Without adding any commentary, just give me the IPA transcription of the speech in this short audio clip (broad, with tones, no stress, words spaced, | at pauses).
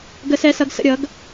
ɡə˩˥sɛ˩˧sʌ˩˧ɡsə̰˩˧ ɾʲʌ˩˥ɡ